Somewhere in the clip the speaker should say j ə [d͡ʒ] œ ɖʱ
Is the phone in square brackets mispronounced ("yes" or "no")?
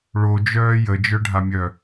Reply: no